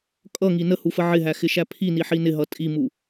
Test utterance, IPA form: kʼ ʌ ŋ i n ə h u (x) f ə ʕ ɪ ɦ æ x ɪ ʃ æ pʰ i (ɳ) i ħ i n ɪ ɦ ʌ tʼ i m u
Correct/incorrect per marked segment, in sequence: incorrect, incorrect

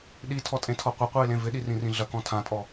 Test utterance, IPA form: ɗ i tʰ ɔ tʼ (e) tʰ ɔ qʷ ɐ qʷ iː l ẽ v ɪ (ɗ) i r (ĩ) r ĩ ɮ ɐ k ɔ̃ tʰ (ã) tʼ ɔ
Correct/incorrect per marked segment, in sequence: incorrect, correct, correct, correct

